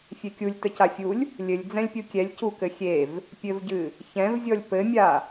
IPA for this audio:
fʲ ɛ kʲ u lʲ t ɘ c a fʲ u lʲ | lʲ ɘ lʲ d͡z ɛ̃ lʲ pʲ u kʲ ɛ lʲ c u k ɘ xʲ e v | pʲ ɘ v ɟ ɨ | ç ɛ̃ v zʲ ɔ lʲ p ɘ mʲ a

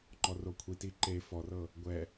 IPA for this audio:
ŋ͡ǃ ɔ r o kʷʰ i t i ǃ e f ɔ r ɤ | ɡʷ ɛ

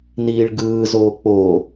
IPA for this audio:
n iː ɭ ɡ ɯː z oː k͡p o

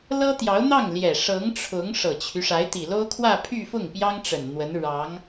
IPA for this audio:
l ɤ˥ t̪ j ɑ˧˥ ʊ̯ n̪ ɑ˥˩ ŋ l j ɛ˨˩ ʂ ɤ˧˥ ŋ ʈ͡ʂʰ ʊ˧˥ ŋ ʂ ɤ˨˩ t͡ɕʰ y˦ ʂ a˧˥ ɪ̯ t̪ i˨˩ l o˥ ʊ̯ kʰ w ä˥˧ pʰ y˥˧ f ʊ˥˩ ŋ p j ɑ˥ ŋ ʈ͡ʂ ə˨˩ n n̪ w ə˧˥ n ɻ ɑ˧˥ ŋ

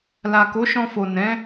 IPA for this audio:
l a˨ k o˨˦ ʃ ɔ̃˧ f o˨ n ɛ̃˨˦

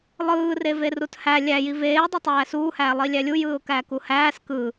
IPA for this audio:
lˠ ɯː r e v e r u t h æ lʲ æ j i v eː dˤ ɯ tˤ æː s uː h æː lˠ i lʲ æ lʲ u j ɯː ʊ̯ k æː k u h æː s k ɯ

